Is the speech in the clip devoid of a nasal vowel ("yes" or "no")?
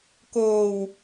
yes